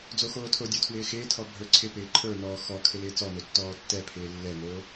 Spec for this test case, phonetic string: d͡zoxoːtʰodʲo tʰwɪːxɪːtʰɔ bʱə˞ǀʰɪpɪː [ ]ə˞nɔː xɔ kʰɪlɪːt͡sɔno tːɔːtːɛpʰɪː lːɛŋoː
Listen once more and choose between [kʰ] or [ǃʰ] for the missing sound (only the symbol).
ǃʰ